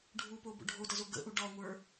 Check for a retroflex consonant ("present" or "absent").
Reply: present